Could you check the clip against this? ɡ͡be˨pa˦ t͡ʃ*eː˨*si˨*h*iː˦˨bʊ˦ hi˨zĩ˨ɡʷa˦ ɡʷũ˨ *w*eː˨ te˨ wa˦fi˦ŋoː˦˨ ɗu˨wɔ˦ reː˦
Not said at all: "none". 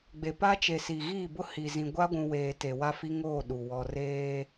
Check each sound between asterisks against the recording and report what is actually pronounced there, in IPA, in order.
e˨, ɣ, w

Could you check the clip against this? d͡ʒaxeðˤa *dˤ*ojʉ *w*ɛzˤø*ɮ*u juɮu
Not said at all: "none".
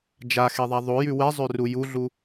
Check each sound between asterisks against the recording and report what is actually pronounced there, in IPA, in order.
ðˤ, w, r

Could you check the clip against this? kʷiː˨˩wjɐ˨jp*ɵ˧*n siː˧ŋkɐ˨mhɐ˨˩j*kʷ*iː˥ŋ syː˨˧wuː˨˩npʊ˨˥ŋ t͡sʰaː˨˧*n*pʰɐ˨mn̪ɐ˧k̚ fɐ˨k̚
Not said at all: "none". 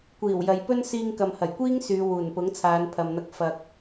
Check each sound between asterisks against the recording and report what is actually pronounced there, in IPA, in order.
ɵ˥, kʷ, n

